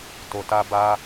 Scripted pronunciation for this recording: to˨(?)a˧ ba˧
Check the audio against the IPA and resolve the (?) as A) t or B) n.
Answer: A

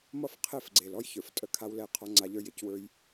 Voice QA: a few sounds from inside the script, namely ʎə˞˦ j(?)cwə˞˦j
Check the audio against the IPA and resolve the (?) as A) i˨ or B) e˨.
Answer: B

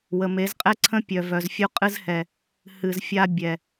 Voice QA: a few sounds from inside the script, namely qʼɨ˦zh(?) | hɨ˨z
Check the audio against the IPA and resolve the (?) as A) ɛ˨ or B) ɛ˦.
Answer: A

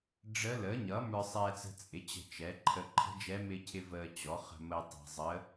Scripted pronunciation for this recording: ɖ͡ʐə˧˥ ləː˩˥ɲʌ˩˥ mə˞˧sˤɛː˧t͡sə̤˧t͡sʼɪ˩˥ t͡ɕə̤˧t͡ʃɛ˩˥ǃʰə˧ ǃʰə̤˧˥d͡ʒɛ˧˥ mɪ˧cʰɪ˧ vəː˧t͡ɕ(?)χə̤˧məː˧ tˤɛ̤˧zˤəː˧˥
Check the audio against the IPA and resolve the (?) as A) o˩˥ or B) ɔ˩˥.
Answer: B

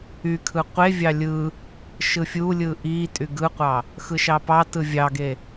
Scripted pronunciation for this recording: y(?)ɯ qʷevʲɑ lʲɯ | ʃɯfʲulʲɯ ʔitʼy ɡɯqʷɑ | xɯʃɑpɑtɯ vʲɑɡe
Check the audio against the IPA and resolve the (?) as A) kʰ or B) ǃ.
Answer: A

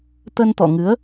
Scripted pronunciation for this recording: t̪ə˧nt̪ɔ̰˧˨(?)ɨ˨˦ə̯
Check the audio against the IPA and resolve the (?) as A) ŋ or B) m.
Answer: A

